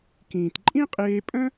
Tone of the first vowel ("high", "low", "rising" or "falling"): low